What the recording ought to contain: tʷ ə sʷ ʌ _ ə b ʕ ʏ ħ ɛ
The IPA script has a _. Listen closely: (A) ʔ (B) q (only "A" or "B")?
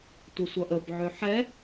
A